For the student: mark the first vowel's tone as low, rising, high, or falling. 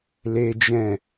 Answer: high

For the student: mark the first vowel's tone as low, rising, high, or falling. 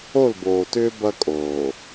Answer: falling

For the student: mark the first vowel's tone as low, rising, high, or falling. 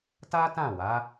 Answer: high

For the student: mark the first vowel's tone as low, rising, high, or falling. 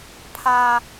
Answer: high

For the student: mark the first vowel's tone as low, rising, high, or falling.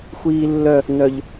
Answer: high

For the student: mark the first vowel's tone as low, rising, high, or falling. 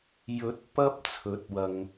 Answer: rising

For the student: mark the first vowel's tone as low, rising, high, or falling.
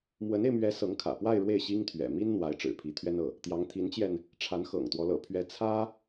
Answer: rising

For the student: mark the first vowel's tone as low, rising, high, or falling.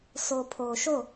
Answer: low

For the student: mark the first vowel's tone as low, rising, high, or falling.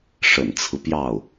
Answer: low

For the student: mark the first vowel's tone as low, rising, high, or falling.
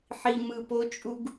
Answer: low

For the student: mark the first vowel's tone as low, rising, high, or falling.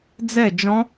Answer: falling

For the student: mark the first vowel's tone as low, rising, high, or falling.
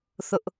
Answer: high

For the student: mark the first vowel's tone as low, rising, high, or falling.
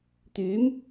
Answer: rising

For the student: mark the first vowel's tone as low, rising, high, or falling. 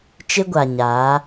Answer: high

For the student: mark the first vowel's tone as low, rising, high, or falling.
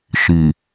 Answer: low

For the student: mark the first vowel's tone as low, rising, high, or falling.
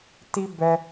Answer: high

